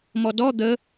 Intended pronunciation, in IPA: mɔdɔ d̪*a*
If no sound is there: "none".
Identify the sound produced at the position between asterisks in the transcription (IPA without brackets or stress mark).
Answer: ə